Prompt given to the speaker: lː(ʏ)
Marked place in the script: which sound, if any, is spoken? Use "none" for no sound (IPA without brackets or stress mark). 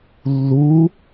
u